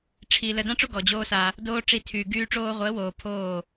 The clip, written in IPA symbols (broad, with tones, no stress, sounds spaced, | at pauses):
ʈ͡ʂʰ i˧ l ə˧ d ã˦ ʈ͡ʂ o˦ ɡ ɔ˨ d͡ʑ oː˦ s a˧ | d oː˧ ʈ͡ʂ i˧ tʰ yː˨ ɡ yː˧ ʈ͡ʂ oː˧ ʁʷ əː˨˦ w oː˨ pʰ oː˦˨